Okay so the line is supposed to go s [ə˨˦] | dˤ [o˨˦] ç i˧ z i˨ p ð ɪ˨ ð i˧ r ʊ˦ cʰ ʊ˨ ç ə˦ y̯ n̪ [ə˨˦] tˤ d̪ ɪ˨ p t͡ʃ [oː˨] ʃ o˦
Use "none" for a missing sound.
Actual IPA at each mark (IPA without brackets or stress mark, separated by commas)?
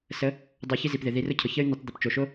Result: ə˨˦, o˨˦, ə˨˦, o˨